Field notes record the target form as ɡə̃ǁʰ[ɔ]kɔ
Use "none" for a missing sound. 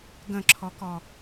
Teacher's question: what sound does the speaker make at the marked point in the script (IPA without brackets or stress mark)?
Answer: ɔ